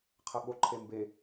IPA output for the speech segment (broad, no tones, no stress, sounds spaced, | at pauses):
qʰ ʌ ɠ o ǃʰ e m b e